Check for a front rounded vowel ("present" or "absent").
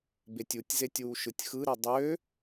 present